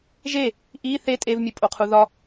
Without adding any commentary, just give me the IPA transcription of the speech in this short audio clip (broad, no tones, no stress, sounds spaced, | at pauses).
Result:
ʒ e | ʔ i θ e tʼ e v mʲ u pʼ o qʰ u ð ɒ